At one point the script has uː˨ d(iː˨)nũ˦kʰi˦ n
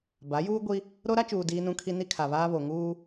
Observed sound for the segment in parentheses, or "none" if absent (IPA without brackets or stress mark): iː˦